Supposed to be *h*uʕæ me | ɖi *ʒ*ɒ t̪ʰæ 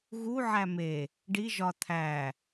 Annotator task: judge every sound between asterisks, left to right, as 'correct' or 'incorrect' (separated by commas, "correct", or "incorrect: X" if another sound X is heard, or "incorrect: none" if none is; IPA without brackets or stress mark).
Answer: incorrect: ɣ, correct